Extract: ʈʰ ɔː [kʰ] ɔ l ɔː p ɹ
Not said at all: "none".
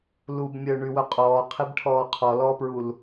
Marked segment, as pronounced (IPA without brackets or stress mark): qʰ